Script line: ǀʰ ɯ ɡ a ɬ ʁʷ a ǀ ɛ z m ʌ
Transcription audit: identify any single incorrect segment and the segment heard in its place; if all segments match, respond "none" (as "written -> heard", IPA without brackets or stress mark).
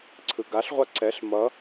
z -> ɬ